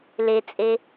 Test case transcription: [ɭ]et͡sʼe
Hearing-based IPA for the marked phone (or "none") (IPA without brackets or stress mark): l